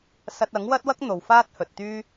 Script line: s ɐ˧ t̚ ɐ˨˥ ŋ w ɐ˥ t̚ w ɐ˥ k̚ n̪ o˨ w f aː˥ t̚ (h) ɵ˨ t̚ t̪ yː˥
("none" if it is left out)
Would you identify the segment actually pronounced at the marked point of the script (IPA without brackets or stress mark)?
h